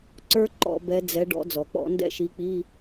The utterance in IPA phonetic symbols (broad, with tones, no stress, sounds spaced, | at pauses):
ǀ ə˞˥ ǃ ɔ̰˧˩˧ b ɛ˨˦ d͡z ɛ˨˦ ɖ ɔ̰˨˦ d͡z ɔ˩ k͡p ɔ̰˧˩˧ n d ɛ̰˦˨ ʃ i˨˦ k͡p i˧˥˧